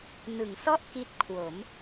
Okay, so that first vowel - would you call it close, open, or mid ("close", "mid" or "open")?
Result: close